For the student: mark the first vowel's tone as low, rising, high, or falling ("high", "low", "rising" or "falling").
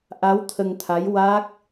rising